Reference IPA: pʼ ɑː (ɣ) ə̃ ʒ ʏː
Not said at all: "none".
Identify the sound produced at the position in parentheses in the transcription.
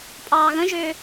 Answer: ɣ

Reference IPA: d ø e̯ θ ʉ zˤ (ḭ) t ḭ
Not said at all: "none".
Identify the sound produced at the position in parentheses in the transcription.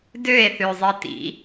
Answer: i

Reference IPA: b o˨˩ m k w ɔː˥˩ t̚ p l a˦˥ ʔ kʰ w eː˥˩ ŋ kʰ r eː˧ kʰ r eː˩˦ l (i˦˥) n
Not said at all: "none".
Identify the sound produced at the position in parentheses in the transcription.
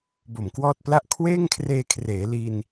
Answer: i˧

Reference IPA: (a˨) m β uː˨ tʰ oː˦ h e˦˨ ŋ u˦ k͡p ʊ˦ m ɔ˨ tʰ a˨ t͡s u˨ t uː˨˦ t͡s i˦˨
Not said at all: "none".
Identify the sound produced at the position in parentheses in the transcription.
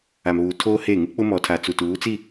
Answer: a˨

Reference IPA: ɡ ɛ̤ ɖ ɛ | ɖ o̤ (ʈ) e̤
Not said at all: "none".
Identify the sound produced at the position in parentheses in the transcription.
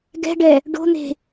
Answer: n̪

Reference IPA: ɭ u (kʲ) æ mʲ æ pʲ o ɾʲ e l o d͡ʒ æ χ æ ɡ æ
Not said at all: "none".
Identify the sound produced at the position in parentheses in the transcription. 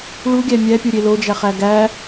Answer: ɡʲ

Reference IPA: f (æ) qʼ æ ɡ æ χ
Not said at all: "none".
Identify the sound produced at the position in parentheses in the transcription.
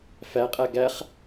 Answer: æ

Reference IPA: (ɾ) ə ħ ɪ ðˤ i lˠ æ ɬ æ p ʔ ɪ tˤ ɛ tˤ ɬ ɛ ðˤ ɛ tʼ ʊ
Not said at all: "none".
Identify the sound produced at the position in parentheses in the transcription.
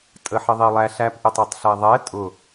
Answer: tʼ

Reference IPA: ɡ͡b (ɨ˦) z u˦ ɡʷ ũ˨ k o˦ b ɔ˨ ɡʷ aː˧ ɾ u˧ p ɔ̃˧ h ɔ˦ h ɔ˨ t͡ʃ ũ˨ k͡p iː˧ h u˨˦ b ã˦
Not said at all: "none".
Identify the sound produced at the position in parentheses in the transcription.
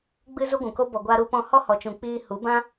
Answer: ɨ˦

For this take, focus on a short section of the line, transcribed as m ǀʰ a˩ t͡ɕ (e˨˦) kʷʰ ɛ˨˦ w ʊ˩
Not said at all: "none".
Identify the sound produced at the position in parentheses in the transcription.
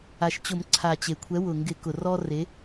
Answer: e˩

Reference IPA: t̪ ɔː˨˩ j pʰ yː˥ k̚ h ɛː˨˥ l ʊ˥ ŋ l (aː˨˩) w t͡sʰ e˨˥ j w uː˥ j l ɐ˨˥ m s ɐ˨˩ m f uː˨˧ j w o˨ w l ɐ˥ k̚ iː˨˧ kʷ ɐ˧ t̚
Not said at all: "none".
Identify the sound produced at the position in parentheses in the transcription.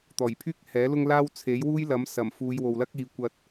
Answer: aː˥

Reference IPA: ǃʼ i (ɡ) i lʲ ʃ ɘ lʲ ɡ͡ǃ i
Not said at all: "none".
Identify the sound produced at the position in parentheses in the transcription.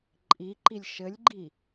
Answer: ǃ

